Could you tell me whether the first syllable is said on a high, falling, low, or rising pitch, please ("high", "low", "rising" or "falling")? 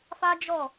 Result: high